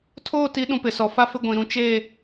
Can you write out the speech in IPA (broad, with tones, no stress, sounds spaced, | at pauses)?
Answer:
tʰ oː˦˨ t i˨˦ ɗ ũ˨ p ɪ˨ s ɔ˨ f a˦ f ɪ˦ ɡʷ ĩ˨ ɾ ũ˨˦ t͡ʃ eː˦˨